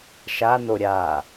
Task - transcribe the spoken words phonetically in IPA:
ʃano ɾʲa

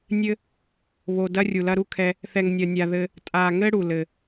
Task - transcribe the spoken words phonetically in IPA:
nʲɘ˦ | βo˨ dɐ˦rʲu˨lɐ˦ ɾu˦kʰɛ˦ | θɛ˨ŋnʲɐ˨nʲa˨ ðɘ˦ | tʼa˨ŋɘ˦ ɽu˨lɘ˨

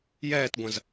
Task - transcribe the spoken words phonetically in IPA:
jɛːtɡʷɐ̃z

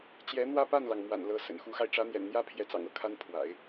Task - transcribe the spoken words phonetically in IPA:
t͡ɕjɛ˧˥n̪wä˥˧pa˥˩nlɑ˩ŋ mwa̰˨˩nlɤ˧˥ sə̰˨˩n xu˧˥xa˧ɪ̯ ʈ͡ʂä˧˥n̪jɛ̰˨˩nn̪jä˥ pʰjɛ˧˥t͡sɑ̰˨˩ŋɤ˥˩kʰa˥n pʰwa̰˨˩˦ɪ̯

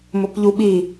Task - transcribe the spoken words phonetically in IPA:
mʊpʎuɓi

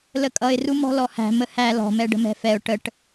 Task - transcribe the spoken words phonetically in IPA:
ləkʼʌɪ̯ rumɔ̤lɔhæ̤ məhæ lɔ̤ mɛɖə̤mɛ̤fɛʊ̯ ʈəʈ

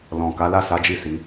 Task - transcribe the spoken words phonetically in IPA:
lɔ̃˨ ka˨˦la˦˨sa˨˦d͡ʒi˦˨ si˨˦

